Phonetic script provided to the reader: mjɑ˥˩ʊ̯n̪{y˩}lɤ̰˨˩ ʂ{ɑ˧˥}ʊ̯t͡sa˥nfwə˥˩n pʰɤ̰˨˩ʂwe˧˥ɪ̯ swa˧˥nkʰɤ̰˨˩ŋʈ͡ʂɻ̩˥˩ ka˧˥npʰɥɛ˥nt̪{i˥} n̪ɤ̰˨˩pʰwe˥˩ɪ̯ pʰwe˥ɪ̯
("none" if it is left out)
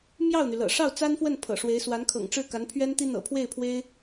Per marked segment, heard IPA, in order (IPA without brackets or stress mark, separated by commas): y˩, ɑ˥˩, i˥